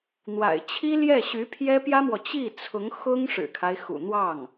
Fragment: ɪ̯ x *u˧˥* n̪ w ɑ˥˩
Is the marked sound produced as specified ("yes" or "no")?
no